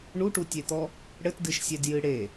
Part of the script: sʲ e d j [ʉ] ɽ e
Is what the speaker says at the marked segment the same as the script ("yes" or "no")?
no